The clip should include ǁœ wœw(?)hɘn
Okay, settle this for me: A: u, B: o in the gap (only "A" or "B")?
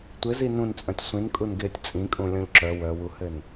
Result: A